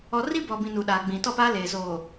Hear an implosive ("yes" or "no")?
yes